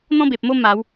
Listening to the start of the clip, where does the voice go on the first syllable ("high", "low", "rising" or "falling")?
high